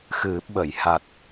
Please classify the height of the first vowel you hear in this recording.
high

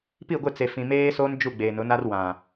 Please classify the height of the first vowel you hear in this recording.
high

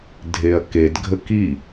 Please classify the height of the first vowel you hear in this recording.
mid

